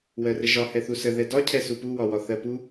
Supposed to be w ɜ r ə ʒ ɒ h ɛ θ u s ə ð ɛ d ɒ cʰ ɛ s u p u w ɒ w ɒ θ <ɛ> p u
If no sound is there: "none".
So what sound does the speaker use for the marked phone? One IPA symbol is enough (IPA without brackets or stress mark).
ɜ